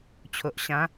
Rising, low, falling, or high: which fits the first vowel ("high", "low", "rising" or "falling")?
low